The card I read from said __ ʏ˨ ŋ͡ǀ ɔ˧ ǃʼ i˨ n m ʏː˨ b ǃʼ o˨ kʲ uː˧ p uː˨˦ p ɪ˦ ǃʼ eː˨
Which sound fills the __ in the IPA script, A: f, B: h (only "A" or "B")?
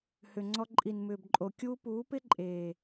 B